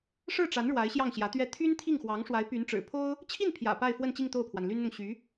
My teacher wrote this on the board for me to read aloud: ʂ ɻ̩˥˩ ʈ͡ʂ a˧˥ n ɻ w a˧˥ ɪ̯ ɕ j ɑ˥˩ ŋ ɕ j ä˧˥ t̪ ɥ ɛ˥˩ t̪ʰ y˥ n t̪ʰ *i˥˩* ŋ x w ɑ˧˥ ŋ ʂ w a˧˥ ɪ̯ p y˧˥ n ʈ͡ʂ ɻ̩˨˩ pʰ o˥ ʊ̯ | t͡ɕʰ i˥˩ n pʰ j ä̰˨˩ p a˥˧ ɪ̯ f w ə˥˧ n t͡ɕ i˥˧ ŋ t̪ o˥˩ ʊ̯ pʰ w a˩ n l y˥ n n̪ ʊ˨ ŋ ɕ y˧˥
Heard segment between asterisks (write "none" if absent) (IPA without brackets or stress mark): i˥˩